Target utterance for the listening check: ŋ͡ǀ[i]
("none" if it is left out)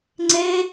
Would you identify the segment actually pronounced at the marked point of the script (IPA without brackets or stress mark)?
e